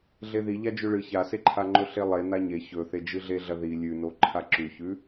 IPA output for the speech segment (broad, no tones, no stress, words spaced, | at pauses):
ɮeði ʎad͡ʒʉɭɨ çaseǃʰaŋ͡ǃɵ ɬelˠe naɲe çɵθe d͡ʒɨɮeɮɐði lʲʉno ǃʰaǁʉçʉ